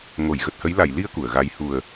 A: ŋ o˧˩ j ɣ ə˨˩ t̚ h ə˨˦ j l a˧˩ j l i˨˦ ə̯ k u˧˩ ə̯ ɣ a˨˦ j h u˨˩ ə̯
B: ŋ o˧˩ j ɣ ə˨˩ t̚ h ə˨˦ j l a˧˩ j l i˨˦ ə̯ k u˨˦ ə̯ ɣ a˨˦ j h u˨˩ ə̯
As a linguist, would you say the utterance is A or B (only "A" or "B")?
A